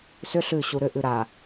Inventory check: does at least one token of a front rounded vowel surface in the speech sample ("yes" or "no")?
yes